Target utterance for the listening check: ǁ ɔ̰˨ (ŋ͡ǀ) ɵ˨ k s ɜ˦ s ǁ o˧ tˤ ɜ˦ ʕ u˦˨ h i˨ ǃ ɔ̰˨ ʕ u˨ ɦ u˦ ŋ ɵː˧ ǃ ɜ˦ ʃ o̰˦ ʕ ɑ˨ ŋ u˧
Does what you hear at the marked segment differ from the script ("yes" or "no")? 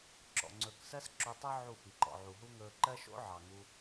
no